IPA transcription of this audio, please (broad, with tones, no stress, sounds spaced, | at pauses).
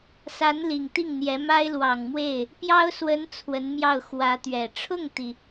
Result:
s a˧˥ n l i˨˩ ŋ t̪ i˥˩ ŋ n̪ j ɛ˧˥ m a˥ ɪ̯ l w ɑ˨˩ ŋ m w e˥˩ ɪ̯ | p j ɑ˥ ʊ̯ s w ə˧˥ n t͡sʰ w ə˧˥ n m j ɑ˥˩ ʊ̯ x w ä˧˥ t̪ ɥ ɛ˨˩ ʈ͡ʂʰ ʊ˥˩ ŋ t̪ i˩